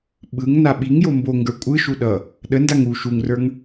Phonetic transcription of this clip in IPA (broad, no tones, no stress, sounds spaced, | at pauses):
ɓ ɯ ŋ n a ɓ i ŋ j o m b o ŋ ɡ ə˞ kʷʼ ɯ ʃ u ɗ ʌ | ɗ ə n d a ŋ u ʃ u ŋ r ə˞ ŋ